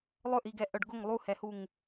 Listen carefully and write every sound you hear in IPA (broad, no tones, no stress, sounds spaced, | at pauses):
lˠ ɵ ʔ i ɡ ɛ ʔ œ ɖ ɡ ʊ ŋ lˠ u h ɛ h u ŋ